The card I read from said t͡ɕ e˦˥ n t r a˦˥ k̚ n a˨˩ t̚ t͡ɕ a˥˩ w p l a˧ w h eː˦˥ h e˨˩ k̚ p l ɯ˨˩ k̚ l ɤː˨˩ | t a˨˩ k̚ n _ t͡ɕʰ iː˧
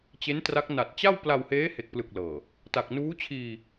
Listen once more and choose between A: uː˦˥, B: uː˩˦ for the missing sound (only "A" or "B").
A